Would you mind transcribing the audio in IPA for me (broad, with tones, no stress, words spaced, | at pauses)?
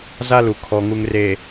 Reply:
za˦lu˨ kʰɔ˨ŋu˨ŋre˨